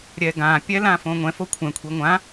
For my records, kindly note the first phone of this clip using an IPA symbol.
ɾʲ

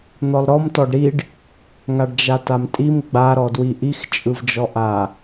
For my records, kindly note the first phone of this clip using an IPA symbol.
n̪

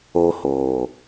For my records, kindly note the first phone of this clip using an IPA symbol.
oː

